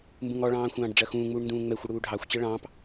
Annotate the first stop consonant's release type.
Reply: plain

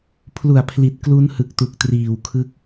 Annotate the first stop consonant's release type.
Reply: aspirated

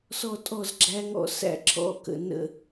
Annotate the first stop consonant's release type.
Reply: ejective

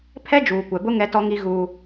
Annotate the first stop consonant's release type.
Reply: aspirated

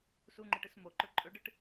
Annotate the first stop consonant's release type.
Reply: click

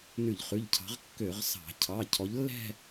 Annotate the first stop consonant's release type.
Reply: aspirated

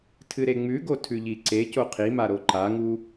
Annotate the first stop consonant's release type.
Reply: aspirated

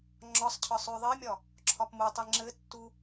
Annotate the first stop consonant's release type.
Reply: click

